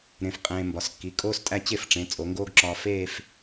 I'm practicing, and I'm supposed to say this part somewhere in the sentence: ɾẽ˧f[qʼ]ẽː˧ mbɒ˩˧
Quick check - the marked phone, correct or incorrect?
correct